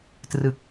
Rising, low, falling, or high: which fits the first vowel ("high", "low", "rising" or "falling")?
low